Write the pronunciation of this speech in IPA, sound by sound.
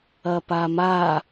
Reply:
ɐ p a m a

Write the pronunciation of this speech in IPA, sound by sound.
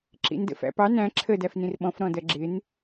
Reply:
ǁ ḭ n d ə̰ f æ̰ p ɑ n æ̃ ǁʰ ə d æ f n ĩ r ɓ ɔ̃ f ɾ ɔ̃ d ɜ ɡ͡ǁ ɪ n

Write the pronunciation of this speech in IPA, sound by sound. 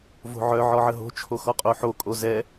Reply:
v o̤ ʕ œ ʕ ɔ ʕ ə ɦ o̤ t͡ʃʰ o x ɔ qʼ o ħ o kʼ o z ɛ

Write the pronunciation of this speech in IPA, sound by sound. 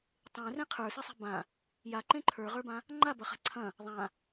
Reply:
tˤ ẽ r ẽ qʰ ə˞ s i sˤ e̤ b ã | j a ǃ ẽ ǃʰ ə˞ ʁ ə˞ b ã | ŋ͡ǃ a b ɐ χ a̤ ǀʰ ɐ̃ | ðˤ ã

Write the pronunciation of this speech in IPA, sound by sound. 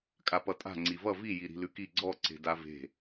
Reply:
kʼ a p ʌ tʼ a̤ ŋ͡ǀ i v ʌ v i j i ɾ i̤ l ʉ k i ɡ͡ǀ ɔ ǀ e̤ d a v e̤

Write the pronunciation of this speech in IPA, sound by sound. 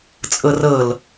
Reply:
t͡sʼ ɤ r ɤ l

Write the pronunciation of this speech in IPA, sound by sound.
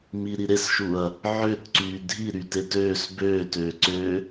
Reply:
m i ɾ i ɾ e s ʃ u ɐ̯ | ʕ ø t ǀ yː dʱ i ɾ y t e t øː s b øː t øː ǀ ø

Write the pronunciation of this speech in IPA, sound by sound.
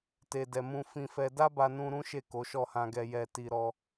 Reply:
t e˨ d ɛ˨ m ũ˧ f ĩ˧ f ɛ˧ d a˦ b a˧ n ũ˧ ɾ ũ˦ ʃ e˦˨ k o˨˦ ʃ ɔ˦˨ h ã˧ ɡ ɛ˧ j ɛ˧ t i˧ ɾ ɔ˦

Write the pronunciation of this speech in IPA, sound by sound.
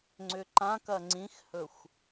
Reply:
ŋ͡ǀ ʏ ǃ ã k ɐ ŋ͡ǀ ĩ x h ɵ xʷ

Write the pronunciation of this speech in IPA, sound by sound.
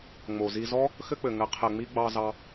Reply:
ŋ͡m o˨ z i˧ z ɔ˦ | x ɘ˦ k͡p ɘ˨ ŋ ɘ˨˦ qʰ ɘ˨ ŋ͡m i˧ ɡ͡b ɑ˧ z ɑ˧

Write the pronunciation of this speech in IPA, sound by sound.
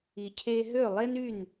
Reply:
i˩ cʰ e˧ ɦ ø˥˩ lˠ e˥ n y˥˩ n

